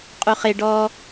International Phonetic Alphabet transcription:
qʼ u χ e ɖ ɔ

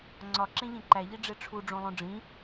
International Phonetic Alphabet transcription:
ŋ͡ǀ ɒ ǁ ẽ ʎ ẽ ǃ æ ʎ i ɖ͡ʐ e ʈ͡ʂʰ u ɖ͡ʐ õ lˠ õ ɖ͡ʐ ĩ

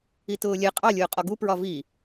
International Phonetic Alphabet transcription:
i t ʊː lʲ ɛ qʼ ɑ lʲ ʊː qʼ ɒ ɡ u p ɹ ɒ v i

